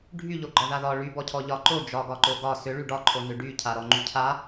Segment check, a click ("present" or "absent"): present